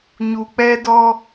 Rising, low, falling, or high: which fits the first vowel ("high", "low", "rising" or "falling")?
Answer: low